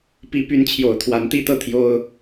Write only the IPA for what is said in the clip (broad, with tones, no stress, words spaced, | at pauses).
pi˧˥py˧˥nt͡ɕʰjo˨˩ʊ̯ t̪ʰwa˧˥nt̪i˥t̪ɤ˥˩ t̪ʰjo˥ʊ̯